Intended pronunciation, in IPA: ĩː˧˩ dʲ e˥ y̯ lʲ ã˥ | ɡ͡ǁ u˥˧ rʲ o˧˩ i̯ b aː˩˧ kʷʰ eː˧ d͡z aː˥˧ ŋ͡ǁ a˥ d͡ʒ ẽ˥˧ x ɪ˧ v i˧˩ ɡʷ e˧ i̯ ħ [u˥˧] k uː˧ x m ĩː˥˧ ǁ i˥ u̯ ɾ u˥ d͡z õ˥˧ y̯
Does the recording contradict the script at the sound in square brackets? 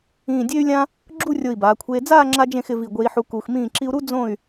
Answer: yes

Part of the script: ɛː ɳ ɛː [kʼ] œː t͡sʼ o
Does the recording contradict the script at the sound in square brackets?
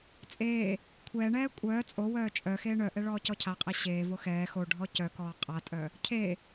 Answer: yes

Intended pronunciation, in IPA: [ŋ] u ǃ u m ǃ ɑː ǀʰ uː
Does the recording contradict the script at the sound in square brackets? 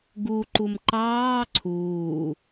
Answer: yes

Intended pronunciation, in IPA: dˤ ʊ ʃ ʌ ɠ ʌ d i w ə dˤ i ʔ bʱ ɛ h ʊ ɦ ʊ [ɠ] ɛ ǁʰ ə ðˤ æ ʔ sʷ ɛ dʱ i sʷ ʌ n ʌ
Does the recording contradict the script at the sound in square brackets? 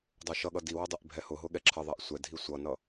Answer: no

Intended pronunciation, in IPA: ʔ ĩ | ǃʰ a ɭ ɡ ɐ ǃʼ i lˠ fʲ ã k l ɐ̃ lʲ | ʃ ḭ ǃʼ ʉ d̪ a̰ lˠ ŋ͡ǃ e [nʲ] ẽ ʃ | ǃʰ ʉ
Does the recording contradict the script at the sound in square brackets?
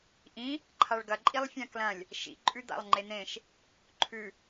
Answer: yes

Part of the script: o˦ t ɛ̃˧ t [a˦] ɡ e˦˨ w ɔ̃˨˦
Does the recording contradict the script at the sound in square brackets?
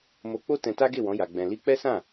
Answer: no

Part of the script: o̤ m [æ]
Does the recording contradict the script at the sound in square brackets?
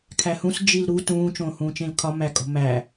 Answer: no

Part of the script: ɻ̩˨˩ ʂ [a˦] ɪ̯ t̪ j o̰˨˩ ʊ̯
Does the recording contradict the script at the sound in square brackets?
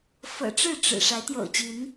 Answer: yes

